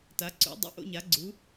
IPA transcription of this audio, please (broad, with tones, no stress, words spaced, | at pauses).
ta˩˥ǀṵ˩˥dˤḭ˩˥ʔ o̰˥˧ɲa˩˥ɡ͡ǀu˩˥